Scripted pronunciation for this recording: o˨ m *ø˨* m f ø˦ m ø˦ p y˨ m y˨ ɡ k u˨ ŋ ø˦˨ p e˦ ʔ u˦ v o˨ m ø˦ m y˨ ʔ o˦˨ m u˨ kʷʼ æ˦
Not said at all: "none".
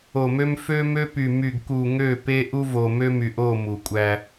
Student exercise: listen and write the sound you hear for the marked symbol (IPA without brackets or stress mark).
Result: ø˦